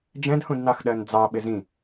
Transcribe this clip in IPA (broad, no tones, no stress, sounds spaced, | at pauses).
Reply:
d͡ʒ ɛ̃ d h ũ d n ɑ x ɗ ɜ n d͡z ɑ ɓ ɪ z ĩ